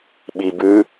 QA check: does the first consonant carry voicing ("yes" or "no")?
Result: yes